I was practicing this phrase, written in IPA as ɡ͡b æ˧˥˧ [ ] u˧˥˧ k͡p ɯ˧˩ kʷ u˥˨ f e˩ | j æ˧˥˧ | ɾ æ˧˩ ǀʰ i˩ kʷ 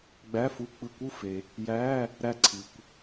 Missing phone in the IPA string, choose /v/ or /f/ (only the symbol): f